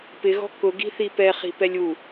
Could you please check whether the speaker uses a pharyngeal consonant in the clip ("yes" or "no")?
no